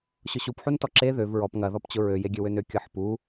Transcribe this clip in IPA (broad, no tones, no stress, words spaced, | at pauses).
ɕʊɕupħuntɔ ǁe ðøv ɹɔp ŋɐðɔpt͡ɕʊ ɹøjeɡʲøwøn økʲɤħpu